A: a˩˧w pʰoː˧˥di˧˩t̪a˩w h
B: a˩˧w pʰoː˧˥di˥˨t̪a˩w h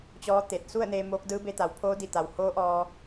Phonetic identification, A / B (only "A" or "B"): A